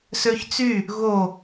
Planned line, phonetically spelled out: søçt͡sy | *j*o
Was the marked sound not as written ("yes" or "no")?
yes